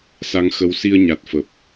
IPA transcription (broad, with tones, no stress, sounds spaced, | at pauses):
s a˧ ŋ x ə˧ w s i˧ ə̯ ɲ a˨˩ t̚ f ə˨˩ p̚